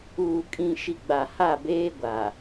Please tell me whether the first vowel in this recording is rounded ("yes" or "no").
yes